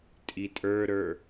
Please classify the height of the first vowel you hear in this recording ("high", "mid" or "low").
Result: high